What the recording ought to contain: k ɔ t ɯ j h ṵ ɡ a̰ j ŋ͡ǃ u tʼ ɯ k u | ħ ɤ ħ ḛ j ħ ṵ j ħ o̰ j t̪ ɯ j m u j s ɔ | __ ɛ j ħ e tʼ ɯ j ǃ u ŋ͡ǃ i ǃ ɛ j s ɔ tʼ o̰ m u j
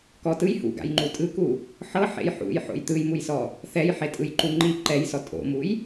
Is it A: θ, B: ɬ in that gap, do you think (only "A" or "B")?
A